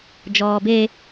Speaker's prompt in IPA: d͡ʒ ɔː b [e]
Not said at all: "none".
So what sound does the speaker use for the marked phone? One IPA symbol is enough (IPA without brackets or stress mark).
e